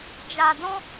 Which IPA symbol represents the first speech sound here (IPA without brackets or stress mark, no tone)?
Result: d͡ʒ